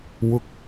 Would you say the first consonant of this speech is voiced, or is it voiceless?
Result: voiced